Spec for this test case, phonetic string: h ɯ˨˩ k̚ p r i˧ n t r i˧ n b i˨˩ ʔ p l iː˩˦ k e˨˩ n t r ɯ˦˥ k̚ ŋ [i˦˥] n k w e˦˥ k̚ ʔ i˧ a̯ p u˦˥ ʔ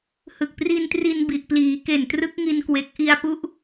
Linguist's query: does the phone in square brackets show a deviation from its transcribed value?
yes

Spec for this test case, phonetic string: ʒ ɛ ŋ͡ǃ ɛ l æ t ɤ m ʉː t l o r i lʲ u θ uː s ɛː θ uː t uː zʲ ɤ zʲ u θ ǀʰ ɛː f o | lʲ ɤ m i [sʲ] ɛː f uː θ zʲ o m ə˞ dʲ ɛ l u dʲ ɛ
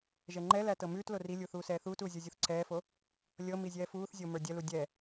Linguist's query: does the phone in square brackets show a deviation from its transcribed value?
yes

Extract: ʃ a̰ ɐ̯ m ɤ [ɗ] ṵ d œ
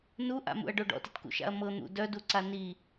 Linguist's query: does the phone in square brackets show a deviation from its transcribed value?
yes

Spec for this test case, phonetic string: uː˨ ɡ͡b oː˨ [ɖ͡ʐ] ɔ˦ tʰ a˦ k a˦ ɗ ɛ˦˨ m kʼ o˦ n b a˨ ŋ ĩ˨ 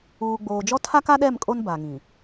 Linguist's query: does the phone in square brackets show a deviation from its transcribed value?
yes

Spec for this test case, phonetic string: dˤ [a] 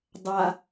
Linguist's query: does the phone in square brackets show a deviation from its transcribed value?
no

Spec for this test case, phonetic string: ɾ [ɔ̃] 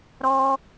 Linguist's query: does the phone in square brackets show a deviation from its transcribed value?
yes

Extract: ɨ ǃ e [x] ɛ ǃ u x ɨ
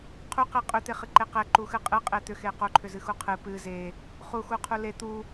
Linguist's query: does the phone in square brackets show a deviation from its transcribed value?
yes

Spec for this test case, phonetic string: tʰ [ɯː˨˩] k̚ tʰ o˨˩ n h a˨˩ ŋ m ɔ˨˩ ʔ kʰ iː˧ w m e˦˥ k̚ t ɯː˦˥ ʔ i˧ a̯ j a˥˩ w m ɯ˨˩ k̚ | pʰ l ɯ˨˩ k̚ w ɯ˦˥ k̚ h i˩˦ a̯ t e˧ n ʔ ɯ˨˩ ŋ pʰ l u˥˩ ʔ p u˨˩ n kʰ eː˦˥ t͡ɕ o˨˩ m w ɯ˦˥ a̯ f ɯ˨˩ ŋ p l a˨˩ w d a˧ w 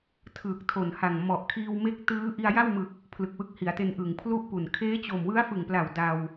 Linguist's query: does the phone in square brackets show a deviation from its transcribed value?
no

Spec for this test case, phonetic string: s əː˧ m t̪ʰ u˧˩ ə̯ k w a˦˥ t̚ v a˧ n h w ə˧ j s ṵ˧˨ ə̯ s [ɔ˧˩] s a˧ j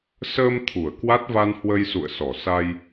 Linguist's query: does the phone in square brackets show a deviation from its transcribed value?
no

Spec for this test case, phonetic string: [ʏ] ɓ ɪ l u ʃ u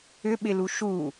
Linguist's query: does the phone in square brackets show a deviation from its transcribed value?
no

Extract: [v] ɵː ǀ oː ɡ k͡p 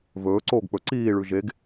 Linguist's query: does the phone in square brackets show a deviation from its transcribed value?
no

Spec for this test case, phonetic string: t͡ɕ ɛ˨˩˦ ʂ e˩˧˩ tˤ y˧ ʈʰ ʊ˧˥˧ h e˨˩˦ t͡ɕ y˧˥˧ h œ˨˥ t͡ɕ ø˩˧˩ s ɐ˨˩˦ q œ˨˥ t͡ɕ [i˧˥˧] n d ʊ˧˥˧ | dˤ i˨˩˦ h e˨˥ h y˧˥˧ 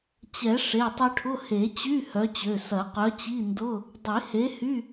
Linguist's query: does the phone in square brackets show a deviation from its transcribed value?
no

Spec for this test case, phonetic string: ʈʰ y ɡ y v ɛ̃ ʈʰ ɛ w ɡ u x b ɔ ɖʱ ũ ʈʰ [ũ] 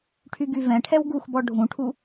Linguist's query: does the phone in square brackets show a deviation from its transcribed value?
yes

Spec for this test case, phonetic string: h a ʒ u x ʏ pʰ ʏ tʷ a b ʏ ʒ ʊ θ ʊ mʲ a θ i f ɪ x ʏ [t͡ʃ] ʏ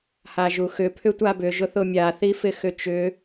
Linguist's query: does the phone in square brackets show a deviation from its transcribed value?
no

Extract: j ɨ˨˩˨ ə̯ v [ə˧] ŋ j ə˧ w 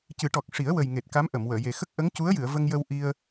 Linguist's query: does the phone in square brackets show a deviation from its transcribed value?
no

